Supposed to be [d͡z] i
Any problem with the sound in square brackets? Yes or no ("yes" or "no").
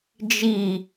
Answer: yes